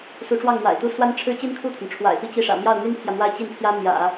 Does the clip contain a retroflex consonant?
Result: yes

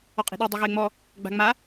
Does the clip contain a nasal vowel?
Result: no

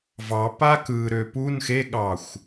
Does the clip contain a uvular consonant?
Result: no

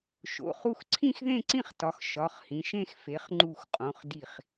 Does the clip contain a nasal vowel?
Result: yes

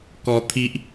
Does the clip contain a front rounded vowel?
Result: no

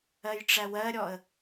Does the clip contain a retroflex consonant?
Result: yes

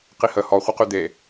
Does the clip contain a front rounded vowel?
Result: yes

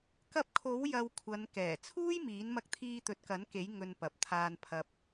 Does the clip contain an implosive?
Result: no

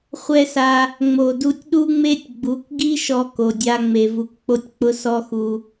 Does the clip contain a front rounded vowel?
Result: no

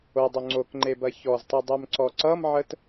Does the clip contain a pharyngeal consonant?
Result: yes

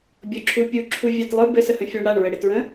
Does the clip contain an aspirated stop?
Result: yes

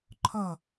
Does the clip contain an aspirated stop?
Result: yes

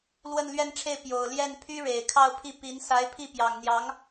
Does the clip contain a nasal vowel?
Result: no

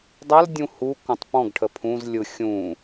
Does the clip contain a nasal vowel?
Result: yes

